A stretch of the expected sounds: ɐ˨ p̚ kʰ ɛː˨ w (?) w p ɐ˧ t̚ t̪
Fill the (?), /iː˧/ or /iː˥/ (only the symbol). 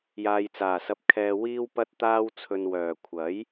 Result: iː˧